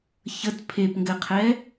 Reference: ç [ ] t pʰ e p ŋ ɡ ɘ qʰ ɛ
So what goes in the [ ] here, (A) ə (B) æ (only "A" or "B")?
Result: A